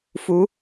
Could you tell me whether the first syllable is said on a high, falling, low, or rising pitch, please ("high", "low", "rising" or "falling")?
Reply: rising